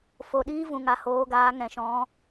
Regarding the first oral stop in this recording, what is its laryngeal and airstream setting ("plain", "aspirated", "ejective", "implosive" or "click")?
implosive